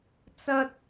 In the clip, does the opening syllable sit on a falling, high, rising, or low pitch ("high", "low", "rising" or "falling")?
high